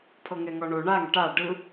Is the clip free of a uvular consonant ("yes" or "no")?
yes